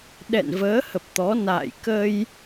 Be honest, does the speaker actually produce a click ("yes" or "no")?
no